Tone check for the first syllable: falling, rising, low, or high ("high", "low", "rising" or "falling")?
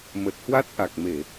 low